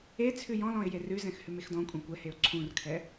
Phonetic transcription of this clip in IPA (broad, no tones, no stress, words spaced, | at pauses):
e t͡sʰʉjɔ̃lɔ̃ɪ̯ jerʉzɛ̃x hʉmexdɔ̃kʷʼɛ̃ kʷɛheʊ̯ ǀʰũrkʰɛ